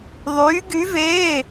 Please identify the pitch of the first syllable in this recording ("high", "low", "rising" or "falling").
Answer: rising